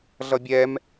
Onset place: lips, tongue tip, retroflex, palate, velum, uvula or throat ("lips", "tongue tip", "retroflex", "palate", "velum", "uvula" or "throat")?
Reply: tongue tip